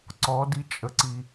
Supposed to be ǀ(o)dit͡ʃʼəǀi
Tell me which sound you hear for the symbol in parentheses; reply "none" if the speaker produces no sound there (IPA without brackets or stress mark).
ɔ